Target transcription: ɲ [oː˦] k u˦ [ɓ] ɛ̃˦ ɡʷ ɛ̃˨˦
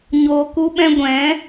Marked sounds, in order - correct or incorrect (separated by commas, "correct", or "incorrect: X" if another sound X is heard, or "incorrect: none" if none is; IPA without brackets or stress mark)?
correct, correct